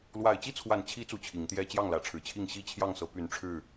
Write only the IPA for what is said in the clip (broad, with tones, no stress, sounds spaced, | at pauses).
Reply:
l w a˨˩ ɪ̯ t͡ɕ i˥˨ t͡sʰ w a˨˩ n t͡ɕʰ i˨˦ t͡s u˨˩ t͡ɕʰ i˨˦ ŋ t̪ j ɛ˦ t͡ɕ j ɑ˥˨ ŋ l ä˨˦ ʈ͡ʂʰ ɻ̩˨˩ t͡ɕʰ i˥˨ ŋ ɕ i˥˨ t͡ɕʰ j ɑ˥˨ ŋ s ɤ˨˦ p y˨˦ n ʈ͡ʂʰ ɻ̩˥˨